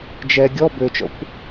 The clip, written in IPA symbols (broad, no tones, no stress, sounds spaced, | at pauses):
d͡ʒ ɛ ɡʲ ɔ b ø t͡ʃ ɔ̰ kʷ